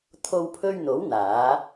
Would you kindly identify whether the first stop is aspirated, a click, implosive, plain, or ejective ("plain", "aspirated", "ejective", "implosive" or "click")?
aspirated